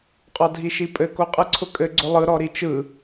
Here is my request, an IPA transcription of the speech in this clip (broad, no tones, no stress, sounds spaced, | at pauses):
qʼ ɔ dʱ i ʃ i pʼ ɘ k o qʼ ɯ ǀʰ ʊ kʼ ɘ ɡ͡ǀ ʊ lˠ ɯ ɾ ɔ ɾ i t͡ʃ ɯ